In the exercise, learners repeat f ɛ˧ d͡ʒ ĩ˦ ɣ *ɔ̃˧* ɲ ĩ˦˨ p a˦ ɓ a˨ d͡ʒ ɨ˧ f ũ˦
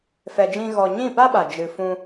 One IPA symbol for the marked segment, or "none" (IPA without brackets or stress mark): ɔ˧